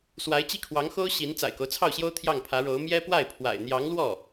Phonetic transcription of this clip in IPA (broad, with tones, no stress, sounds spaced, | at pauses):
s w a˧˥ ɪ̯ t͡ɕ i˥˩ kʰ w ɑ˧˥ ŋ x o˥ ʊ̯ ɕ i˧˥ n t͡s a̰˨˩ ɪ̯ k o˦ ʊ̯ t͡sʰ ɑ˥˩ ʊ̯ ɕ j o˥ ʊ̯ t̪ʰ j ɑ˥˩ ŋ pʰ ä˧˥ ɻ o˧˥ ʊ̯ m j ɛ˥ p w a˥˩ ɪ̯ pʰ w a̰˨˩ ɪ̯ n̪ j ɑ˧˥ ŋ l w ɔ˥˩